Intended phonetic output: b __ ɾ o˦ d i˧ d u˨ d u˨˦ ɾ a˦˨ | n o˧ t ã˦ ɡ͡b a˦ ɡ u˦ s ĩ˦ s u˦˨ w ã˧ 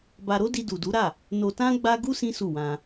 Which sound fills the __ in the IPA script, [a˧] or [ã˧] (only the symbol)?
a˧